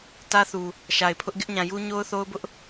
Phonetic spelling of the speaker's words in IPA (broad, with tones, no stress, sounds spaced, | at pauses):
t ä˦ θ u˨ | ʃ a˨ ɪ̯ pʰ ʊ˦ ʔ ɡ ɪ˦ ʔ ɲ ã˨ j u˦ ɲ o˦ ʊ̯ θ o˦ ʊ̯ b ʊ˦ ʔ